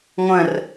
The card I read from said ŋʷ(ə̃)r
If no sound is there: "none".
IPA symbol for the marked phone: ə̃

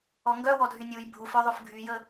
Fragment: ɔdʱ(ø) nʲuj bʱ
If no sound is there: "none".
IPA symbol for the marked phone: y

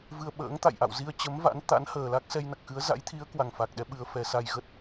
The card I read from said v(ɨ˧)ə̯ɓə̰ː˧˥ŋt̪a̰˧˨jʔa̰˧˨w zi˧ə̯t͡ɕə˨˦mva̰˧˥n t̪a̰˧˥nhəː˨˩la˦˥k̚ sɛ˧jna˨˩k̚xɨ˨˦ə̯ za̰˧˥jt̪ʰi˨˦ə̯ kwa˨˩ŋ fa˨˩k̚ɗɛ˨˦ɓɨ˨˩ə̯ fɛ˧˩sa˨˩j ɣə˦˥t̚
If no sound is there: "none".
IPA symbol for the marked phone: ɨ˧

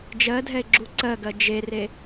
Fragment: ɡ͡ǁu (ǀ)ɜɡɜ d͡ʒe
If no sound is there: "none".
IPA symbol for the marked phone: ǀ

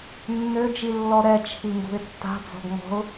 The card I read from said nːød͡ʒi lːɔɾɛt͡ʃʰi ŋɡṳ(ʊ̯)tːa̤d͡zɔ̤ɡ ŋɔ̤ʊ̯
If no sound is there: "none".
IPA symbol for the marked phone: ɪ̯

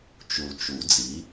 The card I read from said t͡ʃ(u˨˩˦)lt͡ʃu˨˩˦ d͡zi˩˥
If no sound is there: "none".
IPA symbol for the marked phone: u˨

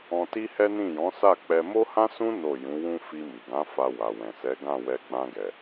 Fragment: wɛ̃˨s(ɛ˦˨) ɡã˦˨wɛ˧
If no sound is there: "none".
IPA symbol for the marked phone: ɛ˨˦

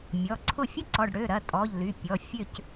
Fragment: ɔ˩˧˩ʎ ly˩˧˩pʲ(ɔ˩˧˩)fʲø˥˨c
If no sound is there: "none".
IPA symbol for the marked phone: ɔ˩˧˩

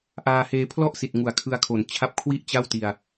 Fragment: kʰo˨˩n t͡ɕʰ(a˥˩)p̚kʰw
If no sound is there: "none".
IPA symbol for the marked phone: a˦˥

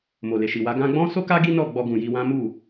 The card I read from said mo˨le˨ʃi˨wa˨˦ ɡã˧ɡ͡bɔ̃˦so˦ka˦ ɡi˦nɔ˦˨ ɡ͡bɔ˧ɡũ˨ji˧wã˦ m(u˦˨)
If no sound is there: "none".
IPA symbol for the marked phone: u˦˨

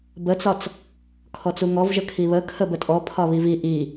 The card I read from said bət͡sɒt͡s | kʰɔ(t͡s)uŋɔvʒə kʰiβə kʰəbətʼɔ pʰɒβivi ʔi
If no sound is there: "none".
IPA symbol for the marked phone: t͡s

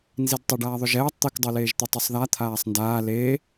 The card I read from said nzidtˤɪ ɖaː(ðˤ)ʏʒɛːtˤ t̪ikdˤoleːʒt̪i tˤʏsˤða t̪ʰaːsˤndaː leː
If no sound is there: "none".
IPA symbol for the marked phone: ðˤ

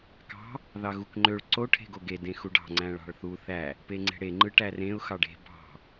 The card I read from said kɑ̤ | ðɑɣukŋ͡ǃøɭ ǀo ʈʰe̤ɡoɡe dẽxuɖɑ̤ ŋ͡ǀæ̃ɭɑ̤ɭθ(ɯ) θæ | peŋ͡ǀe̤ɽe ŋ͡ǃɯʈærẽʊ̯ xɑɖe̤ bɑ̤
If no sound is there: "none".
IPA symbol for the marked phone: u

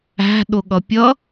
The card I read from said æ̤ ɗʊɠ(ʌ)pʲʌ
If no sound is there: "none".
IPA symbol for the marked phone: ʌ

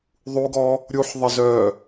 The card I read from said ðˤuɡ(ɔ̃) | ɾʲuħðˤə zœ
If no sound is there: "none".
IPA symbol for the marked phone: ɔ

